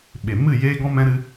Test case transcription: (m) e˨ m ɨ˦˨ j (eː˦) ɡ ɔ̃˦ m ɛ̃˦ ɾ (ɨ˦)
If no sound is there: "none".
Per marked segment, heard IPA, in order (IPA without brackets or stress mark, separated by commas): ɓ, eː˦, ɨ˦